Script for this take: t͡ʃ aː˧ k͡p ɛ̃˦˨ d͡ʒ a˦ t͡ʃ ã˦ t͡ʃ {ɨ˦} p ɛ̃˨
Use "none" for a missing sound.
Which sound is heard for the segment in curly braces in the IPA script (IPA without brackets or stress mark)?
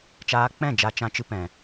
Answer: ɨ˦